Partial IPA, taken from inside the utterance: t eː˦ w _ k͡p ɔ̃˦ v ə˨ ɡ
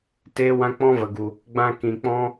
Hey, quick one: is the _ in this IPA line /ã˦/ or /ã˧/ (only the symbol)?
ã˦